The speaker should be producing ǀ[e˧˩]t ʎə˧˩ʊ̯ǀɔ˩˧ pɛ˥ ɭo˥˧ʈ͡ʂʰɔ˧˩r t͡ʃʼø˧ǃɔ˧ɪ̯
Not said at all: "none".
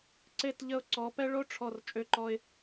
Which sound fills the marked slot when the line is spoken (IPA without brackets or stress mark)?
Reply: e˧˩